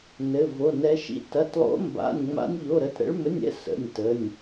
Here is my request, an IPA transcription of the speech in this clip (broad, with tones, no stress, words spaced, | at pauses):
nɘ˩˧˩vo˩˧˩nɛ˨˦ʃḭ˨˦ tɐ˩˧˩tlˠo̰˨˦mba̰˩˧˩nʲ ŋ͡ma̰˨˦nʲʎo˩˧˩ɾə˩˧˩tɾə̰˨˦ɭ mɘ˩˧˩nʲɛ̰˨˦ sə̰˩˧˩nʲtə˩˧˩nʲ